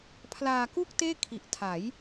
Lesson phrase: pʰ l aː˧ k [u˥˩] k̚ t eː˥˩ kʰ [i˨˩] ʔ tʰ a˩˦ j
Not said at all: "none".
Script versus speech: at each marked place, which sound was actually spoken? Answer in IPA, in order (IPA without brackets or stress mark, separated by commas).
u˥˩, i˨˩